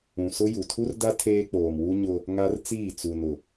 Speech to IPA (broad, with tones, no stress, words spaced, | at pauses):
ũ˨sʊ˦ ju˨tʰu˦rda˦ tʰeː˦k͡poː˨mwu˦ ɲʊ˦ | ŋa˦rt͡siː˦˨ t͡su˨nʊ˨